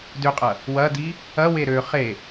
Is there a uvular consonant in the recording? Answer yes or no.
yes